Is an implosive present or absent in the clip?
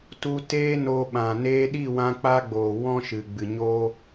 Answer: present